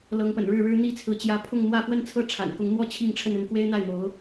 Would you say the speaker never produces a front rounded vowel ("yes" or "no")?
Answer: yes